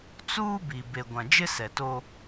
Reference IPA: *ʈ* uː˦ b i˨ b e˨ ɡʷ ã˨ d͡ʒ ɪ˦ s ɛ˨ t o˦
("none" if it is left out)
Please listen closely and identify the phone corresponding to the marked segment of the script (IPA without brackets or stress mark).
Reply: t͡s